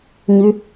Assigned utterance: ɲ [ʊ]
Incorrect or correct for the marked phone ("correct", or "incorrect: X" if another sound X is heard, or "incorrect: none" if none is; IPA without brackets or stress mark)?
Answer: incorrect: ʉ